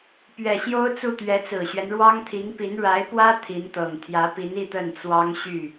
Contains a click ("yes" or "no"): no